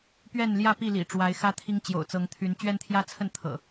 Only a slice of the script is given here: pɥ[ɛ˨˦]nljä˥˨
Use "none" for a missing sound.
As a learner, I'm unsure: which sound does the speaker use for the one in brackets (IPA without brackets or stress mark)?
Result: ɛ˥˨